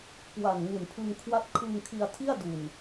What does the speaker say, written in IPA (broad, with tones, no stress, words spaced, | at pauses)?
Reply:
kwa˨˩n ŋu˨˩npʰɯ˧ŋ kʰwa˦˥t̚kʰɯ˧ŋ kʰi˧a̯tʰi˥˩a̯du˨˩n